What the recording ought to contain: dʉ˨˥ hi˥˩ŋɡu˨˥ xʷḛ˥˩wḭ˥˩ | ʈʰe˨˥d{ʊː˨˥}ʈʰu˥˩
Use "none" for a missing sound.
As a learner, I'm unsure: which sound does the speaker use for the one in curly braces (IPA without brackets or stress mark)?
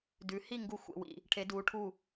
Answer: uː˨˥